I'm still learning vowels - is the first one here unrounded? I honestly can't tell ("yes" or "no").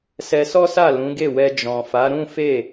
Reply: yes